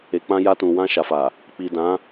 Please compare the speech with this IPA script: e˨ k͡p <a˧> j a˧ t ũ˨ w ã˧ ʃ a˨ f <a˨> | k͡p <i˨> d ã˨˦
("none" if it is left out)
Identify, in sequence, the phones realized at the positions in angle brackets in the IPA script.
ã˧, a˨, i˨

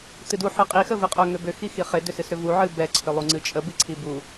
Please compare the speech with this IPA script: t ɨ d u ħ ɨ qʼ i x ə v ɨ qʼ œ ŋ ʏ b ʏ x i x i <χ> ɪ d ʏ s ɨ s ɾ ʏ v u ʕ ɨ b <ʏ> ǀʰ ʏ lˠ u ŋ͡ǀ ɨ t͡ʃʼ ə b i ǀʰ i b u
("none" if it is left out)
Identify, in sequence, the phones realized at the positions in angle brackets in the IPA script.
χ, ɛ

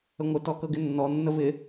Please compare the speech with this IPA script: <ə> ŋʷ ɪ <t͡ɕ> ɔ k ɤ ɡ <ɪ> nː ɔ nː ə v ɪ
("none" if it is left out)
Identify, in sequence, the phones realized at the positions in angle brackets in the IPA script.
ə, t, ɪ

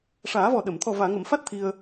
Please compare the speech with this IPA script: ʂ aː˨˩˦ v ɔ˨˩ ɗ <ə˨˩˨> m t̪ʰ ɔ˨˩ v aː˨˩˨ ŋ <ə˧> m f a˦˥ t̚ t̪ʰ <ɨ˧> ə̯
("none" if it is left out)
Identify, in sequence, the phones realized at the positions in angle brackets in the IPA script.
ə˨˩˨, ə˨˩˨, i˧

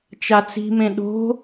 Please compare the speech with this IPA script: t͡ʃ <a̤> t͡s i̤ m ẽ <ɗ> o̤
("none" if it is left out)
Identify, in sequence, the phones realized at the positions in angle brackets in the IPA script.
a, ɗ

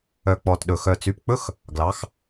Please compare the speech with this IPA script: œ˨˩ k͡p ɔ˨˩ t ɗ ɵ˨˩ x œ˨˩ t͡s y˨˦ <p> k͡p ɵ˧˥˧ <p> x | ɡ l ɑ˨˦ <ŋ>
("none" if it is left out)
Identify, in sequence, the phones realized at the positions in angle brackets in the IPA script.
p, none, x

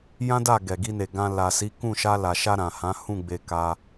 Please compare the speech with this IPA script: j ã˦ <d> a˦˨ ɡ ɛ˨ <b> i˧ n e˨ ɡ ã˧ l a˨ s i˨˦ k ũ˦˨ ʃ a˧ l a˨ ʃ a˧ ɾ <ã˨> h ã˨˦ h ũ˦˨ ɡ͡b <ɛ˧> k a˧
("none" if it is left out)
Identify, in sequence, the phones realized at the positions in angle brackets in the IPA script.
d, ɡ, ã˨, e˧

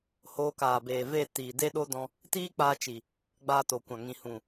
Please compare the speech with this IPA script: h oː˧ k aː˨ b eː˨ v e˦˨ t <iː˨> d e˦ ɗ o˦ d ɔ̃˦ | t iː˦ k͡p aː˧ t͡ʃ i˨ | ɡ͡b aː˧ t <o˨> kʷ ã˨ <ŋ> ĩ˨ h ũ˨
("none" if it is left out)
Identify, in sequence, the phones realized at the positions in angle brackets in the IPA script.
iː˨, o˨, ŋ

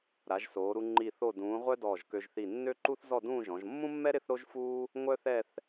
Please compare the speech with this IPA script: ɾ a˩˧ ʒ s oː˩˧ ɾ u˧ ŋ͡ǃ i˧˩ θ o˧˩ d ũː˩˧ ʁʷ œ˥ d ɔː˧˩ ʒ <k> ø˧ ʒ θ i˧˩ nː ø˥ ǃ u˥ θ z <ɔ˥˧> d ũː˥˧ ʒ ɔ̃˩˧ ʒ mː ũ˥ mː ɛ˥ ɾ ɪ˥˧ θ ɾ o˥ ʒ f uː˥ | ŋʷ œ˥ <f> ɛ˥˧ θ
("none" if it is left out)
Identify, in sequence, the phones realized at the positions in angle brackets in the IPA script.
k, ɔ˥˧, θ

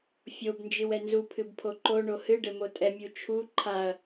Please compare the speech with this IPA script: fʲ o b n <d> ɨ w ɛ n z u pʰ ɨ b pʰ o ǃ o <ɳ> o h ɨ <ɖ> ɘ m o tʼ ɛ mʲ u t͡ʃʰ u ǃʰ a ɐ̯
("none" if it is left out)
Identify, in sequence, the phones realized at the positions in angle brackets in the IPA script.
d͡ʒ, ɳ, ɖ

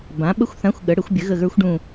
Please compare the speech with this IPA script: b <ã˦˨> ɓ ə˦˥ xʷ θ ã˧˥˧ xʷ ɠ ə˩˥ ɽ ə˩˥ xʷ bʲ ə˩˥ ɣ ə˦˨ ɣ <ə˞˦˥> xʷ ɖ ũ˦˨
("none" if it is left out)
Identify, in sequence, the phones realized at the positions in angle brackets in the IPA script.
ã˩˥, ə˞˦˥

